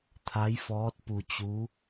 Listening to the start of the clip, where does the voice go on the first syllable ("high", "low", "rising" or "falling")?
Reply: rising